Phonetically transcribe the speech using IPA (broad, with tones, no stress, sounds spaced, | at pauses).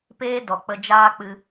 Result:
p eː˦ d ɔ˨ k͡p ə˧ d͡ʒ aː˦ k͡p ɨ˧